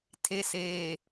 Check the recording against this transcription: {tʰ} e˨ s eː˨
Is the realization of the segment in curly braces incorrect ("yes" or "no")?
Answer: no